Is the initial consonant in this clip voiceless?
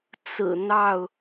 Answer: yes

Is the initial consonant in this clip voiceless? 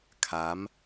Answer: yes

